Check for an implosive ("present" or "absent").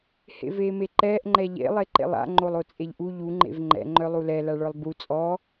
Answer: absent